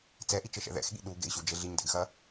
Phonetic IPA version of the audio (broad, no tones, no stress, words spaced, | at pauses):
t͡sɛʔit͡ʃɘʃɛ̰ ðɛ̰xɠḭ ɗuɡḛi̯ɕud͡ʒe ɮiɲdɛ̰ɡxɐ